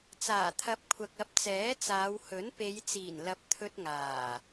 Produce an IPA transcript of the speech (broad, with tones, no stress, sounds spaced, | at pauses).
t͡s aː˨˩ t̪ʰ ɐ˨˥ p̚ kʷʰ ɐ˨ k̚ ɐ˨˥ p̚ t͡s ɛː˨˥ t͡s aː˨˧ w h ɵ˨˥ n p e˨˧ j t͡s iː˨˩ n l ɐ˨˥ p̚ t̪ʰ ɵ˧ t̚ ŋ aː˨˩